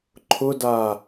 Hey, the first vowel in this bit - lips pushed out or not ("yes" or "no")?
yes